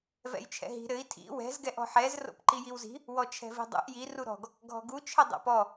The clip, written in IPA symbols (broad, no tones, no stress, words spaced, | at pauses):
vɛ̰jt͡ʃʰɛ̰ɦi̤ ɾɘi̯ tʰḭ wɛ̤z ɡɛʔɔ̤ħɛz ro̰pǃijiwzi̤ | wɔt͡ʃʰɛ̤vi̤dˤṵʔ ji ruɾɔ̤ɡ | ɡʱɔ̤ɡu t͡ʃʰɘdˤo̰pɔ